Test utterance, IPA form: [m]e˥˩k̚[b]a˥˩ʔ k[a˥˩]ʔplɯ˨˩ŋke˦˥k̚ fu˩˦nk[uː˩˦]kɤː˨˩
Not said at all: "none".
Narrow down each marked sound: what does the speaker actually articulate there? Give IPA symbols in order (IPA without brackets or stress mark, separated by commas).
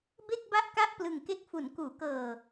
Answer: b, b, a˥˩, uː˩˦